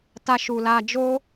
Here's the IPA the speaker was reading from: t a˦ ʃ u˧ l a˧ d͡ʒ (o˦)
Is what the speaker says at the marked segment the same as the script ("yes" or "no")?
yes